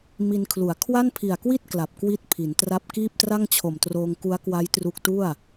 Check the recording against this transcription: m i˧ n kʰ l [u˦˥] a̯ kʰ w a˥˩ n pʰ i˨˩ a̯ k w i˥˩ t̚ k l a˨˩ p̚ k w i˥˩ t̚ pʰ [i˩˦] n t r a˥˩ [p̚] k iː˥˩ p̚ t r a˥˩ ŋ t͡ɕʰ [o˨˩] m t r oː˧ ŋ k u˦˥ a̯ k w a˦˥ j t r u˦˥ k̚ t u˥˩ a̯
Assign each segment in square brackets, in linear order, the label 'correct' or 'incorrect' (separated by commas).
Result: incorrect, correct, correct, correct